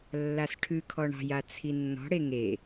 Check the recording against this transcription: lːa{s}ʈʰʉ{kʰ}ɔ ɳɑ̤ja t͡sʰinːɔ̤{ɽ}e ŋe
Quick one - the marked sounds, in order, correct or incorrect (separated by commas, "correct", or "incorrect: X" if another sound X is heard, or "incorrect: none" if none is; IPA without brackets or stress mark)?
correct, correct, correct